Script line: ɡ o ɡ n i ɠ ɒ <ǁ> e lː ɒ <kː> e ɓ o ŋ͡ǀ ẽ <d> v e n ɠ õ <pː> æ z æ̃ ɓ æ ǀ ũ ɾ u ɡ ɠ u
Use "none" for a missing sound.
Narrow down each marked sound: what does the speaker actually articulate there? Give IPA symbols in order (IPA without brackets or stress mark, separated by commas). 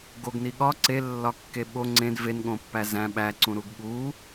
ǀ, kː, d, pː